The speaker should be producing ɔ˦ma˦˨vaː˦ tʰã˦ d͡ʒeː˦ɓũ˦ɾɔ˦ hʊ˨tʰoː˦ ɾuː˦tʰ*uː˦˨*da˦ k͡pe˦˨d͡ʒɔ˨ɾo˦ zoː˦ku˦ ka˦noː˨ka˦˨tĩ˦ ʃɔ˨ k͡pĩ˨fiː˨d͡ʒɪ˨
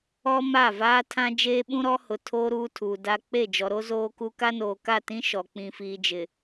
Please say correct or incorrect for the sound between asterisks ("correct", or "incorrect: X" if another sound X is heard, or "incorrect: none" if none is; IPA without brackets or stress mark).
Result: incorrect: uː˨